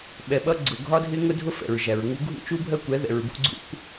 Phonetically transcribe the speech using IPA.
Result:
ɓ ɛ˨ ɓ ʌ˦ ɡ͡ǀ ʊ˨ ɡʱ ɒ˦ dʱ ɪ˦ ŋ ʊ˦ dʱ ʊ˦ f ɛ̰˨ ɹ ʒ æ˨ ɹ ŋ u˦ ɡʱ ṵ˦ t͡ʃ u˦ bʱ ɜ˦ kʷ ɛ˨˦ ð ɛ̰˨ ɹ b ṵ˦ ɡ͡ǀ ṵ˦ kʷ

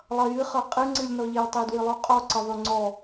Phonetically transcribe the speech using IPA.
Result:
lˠ ʌ j ɨ χ ɤ qʼ ɨ ŋ͡ǀ ɨ lʲ n ɔ ʎ e w tˤ e d w ɨ lˠ o qʼ ɔ ǀ ə ðˤ ø ŋ͡ǀ ɔ

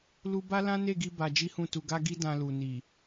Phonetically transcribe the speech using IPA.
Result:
l u˦ b a˦ l ã˦ n e˦˨ ɡ i˧ b a˧ d͡ʒ i˦ h ũ˦˨ t u˧ ɡ a˦ ɡ i˦ d ã˧ l u˨ n i˨

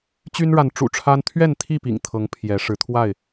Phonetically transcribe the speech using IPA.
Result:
t͡ɕ y˦ n ɻ a˨˦ n ʈ͡ʂ ṵ˨˩ ʈ͡ʂʰ a˦ n t̪ʰ ɥ ɛ˥˨ n t̪ʰ i˥˨ p ḭ˨˩ ŋ t̪ʰ ɤ˨˦ ŋ pʰ j ɛ˨˦ ʂ ɻ̩˨˦ t̪ʰ w a˥˨ ɪ̯

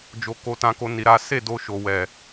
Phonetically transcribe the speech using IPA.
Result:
d͡ʒ o˦ k o˦ t ã˦ k o˦ n i˧ ɾ a˦ s e˦˨ d o˧ ʃ o˦ w ɛ˦˨

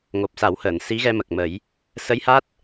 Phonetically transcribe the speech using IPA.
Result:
ŋ o˨˩ p̚ s a˨˩˦ w h əː˨˩˨ n s i˧˥ ɣ ɛ˧ m ə˨˩ k̚ m ə˨˩˦ j | s ə˧˥ j h a˦˥ t̚

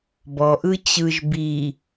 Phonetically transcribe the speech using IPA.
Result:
b ɔ ʔ ɯ t͡ɕ ɯ ʒ b i

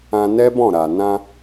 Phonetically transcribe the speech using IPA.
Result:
ã˧ n ɛ˦ b ɔ̃˦˨ ɾ a˨ n ã˧

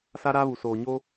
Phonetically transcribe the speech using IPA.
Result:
s a˦ ɾ a˦ β u˨ s oː˨ ɲ o˦

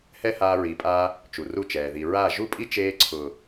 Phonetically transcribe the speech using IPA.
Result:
h ɛ˦ h aː˧ ɹ i˨˦ pʼ aː˧ | t͡ʃ u˨ r u˦˨ t͡ʃ ɛː˨ ð i˨ ɹ a˦˨ ʒ u˦ pʼ i˦ t͡ʃ eː˧ ǀʰ ʊː˨

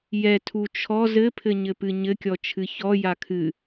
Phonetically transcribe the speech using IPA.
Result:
j ɛ tʰ u t͡ʃʰ ɔ z ɘ pʰ ɘ ɲ ɘ p ɨ ɲ ɘ kʲ ɔ t͡ʃʰ ɨ ç ɔ j a kʰ ɨ

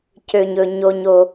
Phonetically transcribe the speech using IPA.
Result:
c ø˨ ɲ ɵ˨ ɲ o˨ ɲ o˨

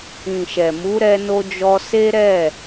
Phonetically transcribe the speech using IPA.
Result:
ĩ˨ ʃ ɛ˨ m u˨˦ ɾ ɛ˧ n o˧ d͡ʒ ɔ˧ s e˦ ɾ ɛ˦˨

